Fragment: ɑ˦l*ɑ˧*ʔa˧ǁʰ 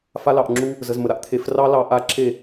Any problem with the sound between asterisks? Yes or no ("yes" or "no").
no